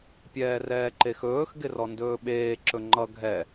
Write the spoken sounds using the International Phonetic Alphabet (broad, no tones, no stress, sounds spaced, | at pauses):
pʲ ɛː r ɛː ǃ e x ɵː x ɡ ɪ r ɔ n d ɵː ɓ eː ǁ ɵ ŋ͡ǃ ʌ ɡʱ ɛ